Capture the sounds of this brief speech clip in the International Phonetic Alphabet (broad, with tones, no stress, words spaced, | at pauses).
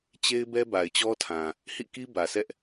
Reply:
t͡ɕe˦ɪ̯bɛ˦ ba˨ɪ̯t͡ɕɔ˦tʰã˨ | hḭ˦˨ki˦ bä˨sɛ˦ʔ